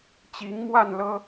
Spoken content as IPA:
t͡ɕ i˨˦ ŋ m w a˥˨ n l ɤ˦

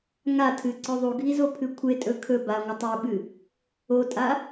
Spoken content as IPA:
ŋ a tʰ ɨ ǀ ɵ ðˤ u ɡʱ i z o pʰ ɨ kʷʰ e tʼ ɵ kʰ ɵ b a ŋʷ ɨ tˤ u ɓ ɨ | o tʼ a

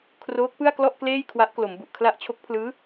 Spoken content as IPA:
kʰ r oː˦˥ k̚ p ɯ˥˩ a̯ k l ɔ˥˩ ʔ k l eː˥˩ j kʰ w a˦˥ ʔ k l o˩˦ m b u˨˩ ʔ kʰ l a˥˩ ʔ t͡ɕʰ o˦˥ k̚ pʰ l ɯː˦˥

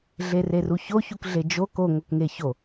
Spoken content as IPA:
ɮ e r e r u ç o ç u k ɮ e d͡ʒ o k o ŋ o k ŋ e ç o

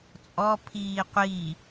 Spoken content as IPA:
t͡sʼ ɔ pʰ iː qʷ i

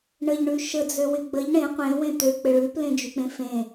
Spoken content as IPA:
ɳ ə ʎ ɳ ʉ ʃ ə d͡z ø w ɪ ɡ͡b ə ʎ ɳ ẽ qʷ ẽ w ẽ t̪ ø k͡p ɪ ɭ ʉ p l ẽ d͡ʒ y k͡p ẽ f ẽ

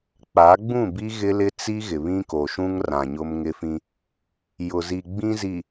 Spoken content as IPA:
k͡p a˨˦ ɡ͡b ũ˦˨ b i˦ ɣ ɪ˦ l ɪ˦ t͡s i˦ ɣ ɪ˨ β ĩ˦ k o˨ ʃ ũ˦ ŋ r ã˨ ɲ ʊ˦ m ŋ ɪ˦ f ĩ˦ | j ʊ˨ z i˨ ɡ͡b ĩ˦ z i˨

